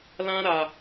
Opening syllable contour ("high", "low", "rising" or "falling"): high